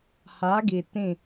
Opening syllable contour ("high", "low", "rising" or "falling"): rising